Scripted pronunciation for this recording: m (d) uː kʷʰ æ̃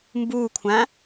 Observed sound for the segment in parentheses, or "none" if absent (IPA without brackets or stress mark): b